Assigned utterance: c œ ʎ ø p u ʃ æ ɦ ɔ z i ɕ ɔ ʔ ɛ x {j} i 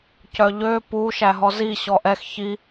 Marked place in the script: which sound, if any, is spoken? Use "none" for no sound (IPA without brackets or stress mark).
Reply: ç